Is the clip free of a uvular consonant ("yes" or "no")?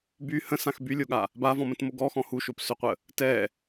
no